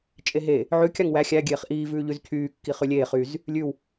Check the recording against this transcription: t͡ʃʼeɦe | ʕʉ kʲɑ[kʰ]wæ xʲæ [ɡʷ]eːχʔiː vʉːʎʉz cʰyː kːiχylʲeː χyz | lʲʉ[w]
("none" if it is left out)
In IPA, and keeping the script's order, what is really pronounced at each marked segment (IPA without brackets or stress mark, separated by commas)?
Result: ŋ, ɡʲ, w